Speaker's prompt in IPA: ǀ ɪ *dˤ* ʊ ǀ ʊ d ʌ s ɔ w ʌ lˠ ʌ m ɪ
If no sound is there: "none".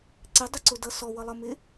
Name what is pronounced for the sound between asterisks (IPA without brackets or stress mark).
dˤ